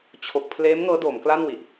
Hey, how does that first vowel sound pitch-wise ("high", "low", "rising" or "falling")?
low